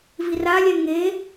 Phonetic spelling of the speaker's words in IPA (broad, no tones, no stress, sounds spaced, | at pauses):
v i r a lʲ ɛ ŋ e